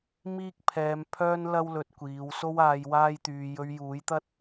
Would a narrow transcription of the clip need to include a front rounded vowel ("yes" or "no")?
yes